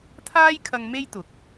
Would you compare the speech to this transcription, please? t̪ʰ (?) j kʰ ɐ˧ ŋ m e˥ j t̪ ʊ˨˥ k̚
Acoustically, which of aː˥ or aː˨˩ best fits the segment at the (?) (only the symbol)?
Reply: aː˥